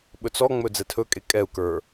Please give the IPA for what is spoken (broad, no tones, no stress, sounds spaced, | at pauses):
ɓ ɵ t͡s ɔ ŋ͡m ɵ d͡z ɛ tʰ ɵ kʼ e kʼ ɛ u̯ k ə˞